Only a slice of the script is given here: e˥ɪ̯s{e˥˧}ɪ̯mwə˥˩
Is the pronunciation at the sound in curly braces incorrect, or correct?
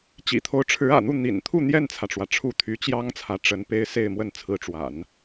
correct